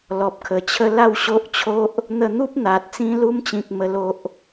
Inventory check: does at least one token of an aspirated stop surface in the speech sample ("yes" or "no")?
yes